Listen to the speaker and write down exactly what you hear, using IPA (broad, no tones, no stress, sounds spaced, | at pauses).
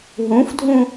ɦ ũ f dʱ ũ